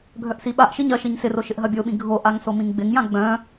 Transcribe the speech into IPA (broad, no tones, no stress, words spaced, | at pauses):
ɡʱœʔsiɓaʔʃiɲ ɐ ʃiɲsɪro ʃɪʔɦɐbʲoɓĩ ɡʱoʔaŋ somĩŋɡ͡bɪŋjã ɡ͡bœ̃